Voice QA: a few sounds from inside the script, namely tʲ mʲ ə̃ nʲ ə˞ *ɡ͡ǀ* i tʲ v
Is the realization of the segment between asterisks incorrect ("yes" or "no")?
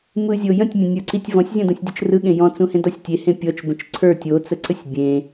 yes